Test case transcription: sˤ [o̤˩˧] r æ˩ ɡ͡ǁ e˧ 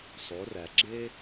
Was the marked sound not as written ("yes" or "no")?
yes